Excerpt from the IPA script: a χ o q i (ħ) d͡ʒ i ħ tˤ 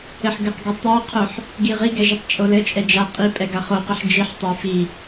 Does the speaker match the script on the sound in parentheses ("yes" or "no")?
yes